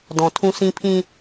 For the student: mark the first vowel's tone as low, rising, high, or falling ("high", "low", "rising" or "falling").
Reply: low